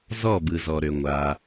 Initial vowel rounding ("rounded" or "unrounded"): rounded